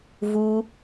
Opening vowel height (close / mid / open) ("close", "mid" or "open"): close